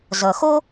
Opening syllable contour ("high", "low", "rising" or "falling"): low